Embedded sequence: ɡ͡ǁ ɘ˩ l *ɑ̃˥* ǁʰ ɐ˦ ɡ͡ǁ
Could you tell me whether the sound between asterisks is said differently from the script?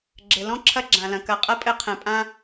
yes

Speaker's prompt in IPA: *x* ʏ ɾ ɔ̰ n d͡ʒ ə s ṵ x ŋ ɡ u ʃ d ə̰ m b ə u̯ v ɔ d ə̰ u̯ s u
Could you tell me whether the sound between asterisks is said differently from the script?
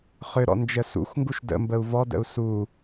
yes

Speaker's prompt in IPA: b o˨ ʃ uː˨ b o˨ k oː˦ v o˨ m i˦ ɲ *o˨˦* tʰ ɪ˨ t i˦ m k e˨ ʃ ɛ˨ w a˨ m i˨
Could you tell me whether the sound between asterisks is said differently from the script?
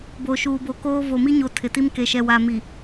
no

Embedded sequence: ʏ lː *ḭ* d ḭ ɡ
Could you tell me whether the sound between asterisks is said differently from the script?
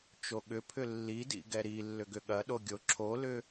yes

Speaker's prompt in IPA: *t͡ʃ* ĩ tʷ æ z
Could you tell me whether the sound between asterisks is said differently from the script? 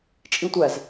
yes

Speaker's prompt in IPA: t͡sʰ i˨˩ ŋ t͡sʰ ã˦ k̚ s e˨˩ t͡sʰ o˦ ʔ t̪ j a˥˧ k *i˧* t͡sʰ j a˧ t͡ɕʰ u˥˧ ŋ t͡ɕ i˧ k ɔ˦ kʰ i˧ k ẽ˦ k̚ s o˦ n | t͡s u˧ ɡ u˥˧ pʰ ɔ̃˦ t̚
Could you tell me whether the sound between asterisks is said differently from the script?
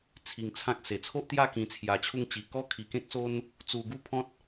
yes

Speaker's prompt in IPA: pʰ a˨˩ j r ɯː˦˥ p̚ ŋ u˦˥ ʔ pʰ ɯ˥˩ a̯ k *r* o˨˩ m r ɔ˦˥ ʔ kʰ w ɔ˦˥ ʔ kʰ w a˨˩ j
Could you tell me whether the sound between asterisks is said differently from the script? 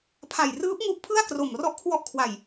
no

